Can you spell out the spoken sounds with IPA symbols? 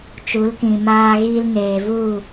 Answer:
t͡ʃ u˨˦ l k ĩ˨ m aː˧ ɣ iː˧ l n eː˨ v u˦˨

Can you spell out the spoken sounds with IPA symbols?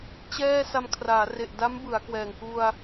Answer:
t͡ɕ ɛː˥˩ s a˧ m kʰ r aː˩˦ r e˨˩ ʔ d a˦˥ m b ɯ˩˦ a̯ k w ɛː˨˩ ŋ k u˧ a̯

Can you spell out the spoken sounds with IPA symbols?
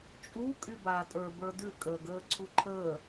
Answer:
t͡ʃʼ u kʼ y b aː tʼ ə˞ b ə˞ d ʉ kʼ əː ɡ əː ǀʰ u ǃʰ əː

